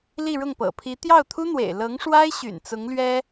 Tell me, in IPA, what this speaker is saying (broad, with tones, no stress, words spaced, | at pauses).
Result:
li˥˧ɻʊ˥˩ŋpɤ̰˨˩pʰi˧˥ t̪jɑ˥˩ʊ̯t̪ʰu˥n̪wḛ˨˩ɪ̯ lɤ˧˥ŋʂwa˥ɪ̯ɕy̰˨˩n t͡sʊ˧˥ŋlɥɛ˥